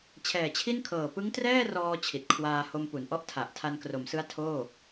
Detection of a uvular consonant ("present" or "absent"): absent